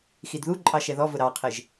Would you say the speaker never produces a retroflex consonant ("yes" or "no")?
yes